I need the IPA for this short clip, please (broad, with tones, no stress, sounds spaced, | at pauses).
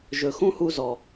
ʒ ɵ˨ x ũ˦ h u˧ z ɔ˨